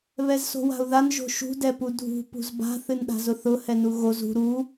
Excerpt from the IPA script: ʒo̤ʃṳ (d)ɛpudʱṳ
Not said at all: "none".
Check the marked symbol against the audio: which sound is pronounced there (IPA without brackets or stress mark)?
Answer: d